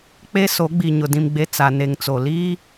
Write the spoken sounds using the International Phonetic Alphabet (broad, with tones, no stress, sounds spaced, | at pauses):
k͡p e˦ s o˨˦ ɡ͡b i˨ ɲ ʊ˨ d ĩ˨ m ɡ͡b e˨ t͡s a˨ n e˨ ŋ t͡s o˨ l iː˦